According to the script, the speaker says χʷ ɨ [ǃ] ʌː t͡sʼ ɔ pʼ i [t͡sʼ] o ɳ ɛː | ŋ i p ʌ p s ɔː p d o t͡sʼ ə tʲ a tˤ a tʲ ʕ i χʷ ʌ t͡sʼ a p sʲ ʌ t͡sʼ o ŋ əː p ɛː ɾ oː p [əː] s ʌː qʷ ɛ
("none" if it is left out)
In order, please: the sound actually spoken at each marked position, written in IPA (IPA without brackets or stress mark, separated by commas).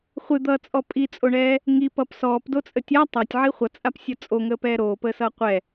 d̪, t͡sʼ, əː